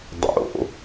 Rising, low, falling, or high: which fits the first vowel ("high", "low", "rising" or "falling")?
low